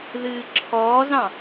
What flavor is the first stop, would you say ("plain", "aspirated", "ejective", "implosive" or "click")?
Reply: click